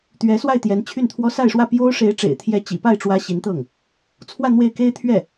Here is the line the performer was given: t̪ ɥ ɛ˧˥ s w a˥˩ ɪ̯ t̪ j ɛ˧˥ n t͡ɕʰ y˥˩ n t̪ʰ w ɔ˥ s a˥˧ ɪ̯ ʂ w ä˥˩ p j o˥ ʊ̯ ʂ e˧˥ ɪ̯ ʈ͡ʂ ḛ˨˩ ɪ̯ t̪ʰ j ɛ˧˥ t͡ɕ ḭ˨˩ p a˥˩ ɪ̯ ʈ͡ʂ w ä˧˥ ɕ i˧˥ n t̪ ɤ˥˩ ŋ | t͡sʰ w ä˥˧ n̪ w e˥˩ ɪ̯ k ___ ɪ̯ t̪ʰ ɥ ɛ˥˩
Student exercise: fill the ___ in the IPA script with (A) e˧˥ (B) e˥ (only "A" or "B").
B